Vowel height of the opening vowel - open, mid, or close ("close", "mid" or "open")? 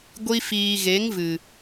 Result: close